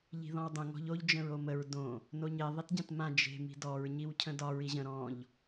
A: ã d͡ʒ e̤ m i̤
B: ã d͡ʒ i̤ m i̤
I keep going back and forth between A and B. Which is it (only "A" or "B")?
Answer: A